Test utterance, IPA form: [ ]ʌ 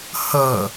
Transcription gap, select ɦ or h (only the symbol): h